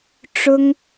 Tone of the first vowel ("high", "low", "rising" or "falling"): high